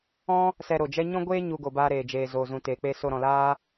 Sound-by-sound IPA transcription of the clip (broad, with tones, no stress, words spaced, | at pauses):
ɔ̃˦ | sɛ˧ɾo˨d͡ʒɛ˦ ɲɔ̃˦ɡʷeː˦ ɲu˧ɡo˨baː˧ ɾeː˨d͡ʒeː˨ zoː˨zũ˨teː˨k͡pe˧ so˧ɾɔ̃˨laː˦